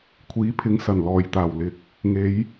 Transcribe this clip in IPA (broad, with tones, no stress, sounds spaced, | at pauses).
kʷʰ iː˨˥ pʰ ɪ˨˧ ŋ s ɐ˨˩ n l ɔː˨˩ j t̪ aː˨˩ w l ɪ˨ k̚ | ŋ e˨˧ j